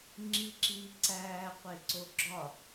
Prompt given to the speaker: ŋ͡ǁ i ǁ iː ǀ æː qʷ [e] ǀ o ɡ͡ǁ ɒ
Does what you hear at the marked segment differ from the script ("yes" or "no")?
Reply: no